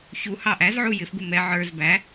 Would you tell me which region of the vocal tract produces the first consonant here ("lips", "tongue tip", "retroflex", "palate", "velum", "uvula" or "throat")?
palate